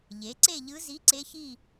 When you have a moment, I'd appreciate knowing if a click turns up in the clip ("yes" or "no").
yes